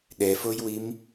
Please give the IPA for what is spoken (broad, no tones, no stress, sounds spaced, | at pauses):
ɗ ɛ f o j w i m